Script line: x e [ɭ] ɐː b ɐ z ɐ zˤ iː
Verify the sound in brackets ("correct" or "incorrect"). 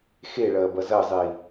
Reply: correct